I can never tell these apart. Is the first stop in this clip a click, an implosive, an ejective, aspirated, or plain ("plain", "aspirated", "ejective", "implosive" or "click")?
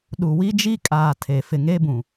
implosive